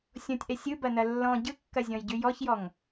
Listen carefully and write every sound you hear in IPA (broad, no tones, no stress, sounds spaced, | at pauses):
sʲ ɔ̃ tʲ ʔ ɛ sʲ ɯ b ɐ n ɐ lː ɔ̃ ɟ ɯ kː ɐ zʲ ɔ̃ j ɟ ʉ j ɔ ç j ɔ ŋ